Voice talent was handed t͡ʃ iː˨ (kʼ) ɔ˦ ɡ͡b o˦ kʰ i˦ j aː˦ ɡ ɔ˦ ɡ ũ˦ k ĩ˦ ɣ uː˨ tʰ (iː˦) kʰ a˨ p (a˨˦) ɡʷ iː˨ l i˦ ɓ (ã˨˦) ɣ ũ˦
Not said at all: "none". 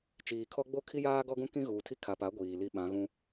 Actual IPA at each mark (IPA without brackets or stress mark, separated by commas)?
kʰ, i˦, a˨˦, ã˨˦